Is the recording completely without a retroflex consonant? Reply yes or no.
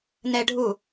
no